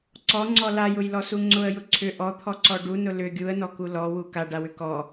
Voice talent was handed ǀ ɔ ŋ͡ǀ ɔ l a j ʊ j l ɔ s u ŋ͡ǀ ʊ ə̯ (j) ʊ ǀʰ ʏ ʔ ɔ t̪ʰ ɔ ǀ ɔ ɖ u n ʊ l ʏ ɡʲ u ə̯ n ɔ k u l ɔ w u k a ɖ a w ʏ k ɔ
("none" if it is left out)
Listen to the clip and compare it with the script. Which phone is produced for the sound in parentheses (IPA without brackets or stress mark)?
j